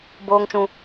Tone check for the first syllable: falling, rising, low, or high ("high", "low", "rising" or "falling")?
low